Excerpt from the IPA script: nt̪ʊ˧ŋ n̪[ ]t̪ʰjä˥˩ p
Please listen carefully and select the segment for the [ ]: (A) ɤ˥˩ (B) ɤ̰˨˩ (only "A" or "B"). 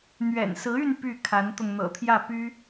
B